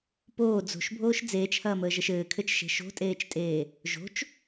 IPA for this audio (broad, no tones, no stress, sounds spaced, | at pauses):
p oː d͡z o̤ ʃ bʱ oː ʃ d͡z eː t͡ʃ h ɐː m əː ʒ ɘ ʃ ɘː kʰ ɘ t͡ʃ ʃ e̤ ʃ o̤ tʼ eː t͡ʃ tʼ eː | ʒ o̤ t͡ʃ